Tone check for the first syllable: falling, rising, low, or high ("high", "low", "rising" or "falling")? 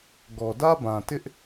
low